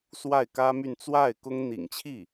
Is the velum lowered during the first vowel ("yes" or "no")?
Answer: no